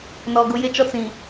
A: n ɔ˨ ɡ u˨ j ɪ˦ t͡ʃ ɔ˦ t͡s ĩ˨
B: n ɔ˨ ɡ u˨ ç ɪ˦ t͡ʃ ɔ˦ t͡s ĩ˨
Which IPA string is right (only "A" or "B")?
A